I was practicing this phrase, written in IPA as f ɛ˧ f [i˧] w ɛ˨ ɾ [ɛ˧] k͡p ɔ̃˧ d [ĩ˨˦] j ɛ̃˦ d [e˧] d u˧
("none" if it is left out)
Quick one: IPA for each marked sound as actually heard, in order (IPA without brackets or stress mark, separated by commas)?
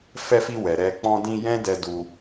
i˧, ɛ˧, ĩ˧, ɛ˧